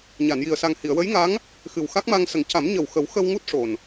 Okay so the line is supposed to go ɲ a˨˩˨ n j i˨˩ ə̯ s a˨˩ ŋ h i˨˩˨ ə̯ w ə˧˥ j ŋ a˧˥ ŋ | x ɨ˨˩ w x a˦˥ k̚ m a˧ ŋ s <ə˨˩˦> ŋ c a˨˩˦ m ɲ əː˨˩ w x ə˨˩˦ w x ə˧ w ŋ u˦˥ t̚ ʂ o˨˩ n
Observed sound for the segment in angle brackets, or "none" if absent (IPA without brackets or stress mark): ə˨˩˦